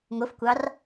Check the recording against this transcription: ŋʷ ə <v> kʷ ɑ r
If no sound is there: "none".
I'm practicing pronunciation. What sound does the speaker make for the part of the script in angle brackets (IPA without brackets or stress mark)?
f